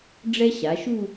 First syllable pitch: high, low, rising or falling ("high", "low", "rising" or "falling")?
high